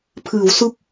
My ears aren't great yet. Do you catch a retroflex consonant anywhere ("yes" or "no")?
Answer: no